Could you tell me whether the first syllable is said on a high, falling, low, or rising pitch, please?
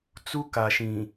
high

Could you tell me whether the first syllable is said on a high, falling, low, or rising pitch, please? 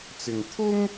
low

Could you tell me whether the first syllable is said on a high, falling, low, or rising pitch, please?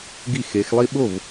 falling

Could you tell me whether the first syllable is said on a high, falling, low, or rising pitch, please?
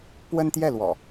high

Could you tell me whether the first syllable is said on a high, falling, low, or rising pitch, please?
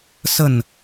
falling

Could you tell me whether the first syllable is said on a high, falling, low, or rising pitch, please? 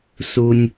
low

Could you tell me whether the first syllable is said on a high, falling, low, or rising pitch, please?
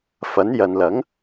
rising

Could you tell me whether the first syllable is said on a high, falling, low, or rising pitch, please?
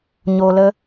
low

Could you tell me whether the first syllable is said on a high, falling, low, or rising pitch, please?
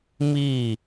falling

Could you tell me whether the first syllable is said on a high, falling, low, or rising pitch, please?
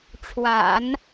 low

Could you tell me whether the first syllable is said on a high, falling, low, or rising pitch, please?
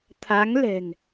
rising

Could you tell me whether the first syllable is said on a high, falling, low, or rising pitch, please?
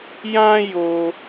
high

